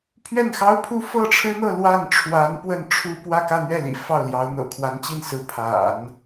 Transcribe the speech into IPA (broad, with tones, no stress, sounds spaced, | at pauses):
pʰ ɥ ɛ˥˩ n x ɑ˥ ʊ̯ pʰ u˥ f ɤ˥˩ ʈ͡ʂʰ ɻ̩˥ n̪ ɤ˥˧ l w a˥˩ n ʈ͡ʂʰ w a˧˥ n p w ə˥˩ n ʈ͡ʂʰ u˥ p w ä˥˧ k ä˥˧ n̪ ɥ ɛ˥˩ l ḭ˨˩ f ɑ˥˩ ʊ̯ l j ɑ˧˥ ʊ̯ n̪ ɤ̰˨˩ kʰ w a˧˥ n t͡ɕ i˥˩ n s ɹ̩˧˥ pʰ a̰˨˩˦ n